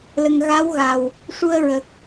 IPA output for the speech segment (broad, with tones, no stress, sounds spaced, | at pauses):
l ə˨˩ ŋ ɣ a˧˥ w ɣ a˨˩ w | ʂ u˧ ə̯ ɹ ə˨˩ k̚